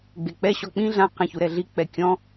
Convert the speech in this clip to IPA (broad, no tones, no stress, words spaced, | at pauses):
ɡ͡bek͡pɛ ɕɔk͡pĩ ɮã qɛ̃ çuɾɛɮi k͡pɛkʲɔ̃